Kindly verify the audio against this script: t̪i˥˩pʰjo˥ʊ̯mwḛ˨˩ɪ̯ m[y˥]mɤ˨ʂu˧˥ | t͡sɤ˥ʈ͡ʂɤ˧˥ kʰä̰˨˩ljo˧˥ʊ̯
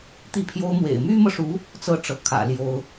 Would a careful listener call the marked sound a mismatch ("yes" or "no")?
no